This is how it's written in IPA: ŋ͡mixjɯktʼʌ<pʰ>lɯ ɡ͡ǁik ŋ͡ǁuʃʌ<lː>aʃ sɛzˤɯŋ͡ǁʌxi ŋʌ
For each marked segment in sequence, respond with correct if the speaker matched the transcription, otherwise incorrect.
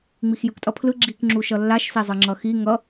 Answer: correct, correct

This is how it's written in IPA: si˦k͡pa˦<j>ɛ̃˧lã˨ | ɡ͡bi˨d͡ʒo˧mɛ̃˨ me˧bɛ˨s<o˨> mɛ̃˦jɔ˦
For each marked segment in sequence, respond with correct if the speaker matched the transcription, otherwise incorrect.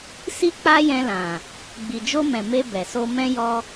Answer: correct, incorrect: o˧

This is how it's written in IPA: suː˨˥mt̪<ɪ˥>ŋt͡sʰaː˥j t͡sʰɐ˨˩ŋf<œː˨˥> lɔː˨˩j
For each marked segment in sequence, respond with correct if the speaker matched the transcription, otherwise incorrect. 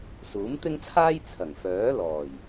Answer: correct, correct

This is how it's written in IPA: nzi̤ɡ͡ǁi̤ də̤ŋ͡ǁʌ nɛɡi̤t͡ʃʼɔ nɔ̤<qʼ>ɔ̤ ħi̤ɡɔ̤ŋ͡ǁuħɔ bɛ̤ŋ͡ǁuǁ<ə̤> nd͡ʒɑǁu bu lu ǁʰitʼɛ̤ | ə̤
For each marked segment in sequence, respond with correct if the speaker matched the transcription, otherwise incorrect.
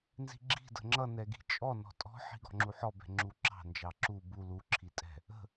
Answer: incorrect: tʼ, incorrect: ɑ̤

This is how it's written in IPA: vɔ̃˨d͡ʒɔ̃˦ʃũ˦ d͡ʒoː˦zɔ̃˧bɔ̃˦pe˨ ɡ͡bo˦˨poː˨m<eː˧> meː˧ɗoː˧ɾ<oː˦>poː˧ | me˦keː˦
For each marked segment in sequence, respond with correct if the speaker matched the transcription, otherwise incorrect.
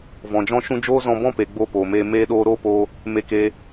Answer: correct, correct

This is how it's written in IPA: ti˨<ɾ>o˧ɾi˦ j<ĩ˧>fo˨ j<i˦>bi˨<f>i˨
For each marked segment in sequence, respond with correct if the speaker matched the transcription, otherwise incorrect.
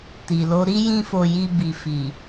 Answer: incorrect: l, correct, incorrect: i˧, correct

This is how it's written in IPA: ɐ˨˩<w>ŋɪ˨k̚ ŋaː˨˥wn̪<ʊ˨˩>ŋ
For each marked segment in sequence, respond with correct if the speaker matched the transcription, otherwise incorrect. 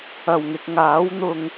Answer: correct, incorrect: ʊ˧

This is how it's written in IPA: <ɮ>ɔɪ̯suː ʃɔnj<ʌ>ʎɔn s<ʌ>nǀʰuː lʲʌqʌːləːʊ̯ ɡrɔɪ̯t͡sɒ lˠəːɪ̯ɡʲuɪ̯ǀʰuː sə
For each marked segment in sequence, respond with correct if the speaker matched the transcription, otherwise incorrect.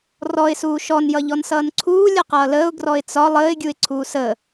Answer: incorrect: r, correct, incorrect: ʌː

